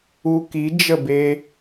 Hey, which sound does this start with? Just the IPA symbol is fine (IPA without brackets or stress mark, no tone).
u